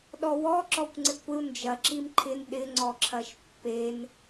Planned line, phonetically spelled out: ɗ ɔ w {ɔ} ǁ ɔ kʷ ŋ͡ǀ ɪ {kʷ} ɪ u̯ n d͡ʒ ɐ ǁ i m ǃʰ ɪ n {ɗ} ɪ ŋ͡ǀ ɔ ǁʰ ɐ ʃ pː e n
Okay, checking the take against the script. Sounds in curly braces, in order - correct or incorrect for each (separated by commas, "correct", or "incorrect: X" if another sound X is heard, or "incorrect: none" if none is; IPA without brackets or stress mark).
correct, correct, correct